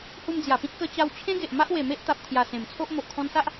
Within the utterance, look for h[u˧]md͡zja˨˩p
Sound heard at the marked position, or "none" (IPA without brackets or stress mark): u˧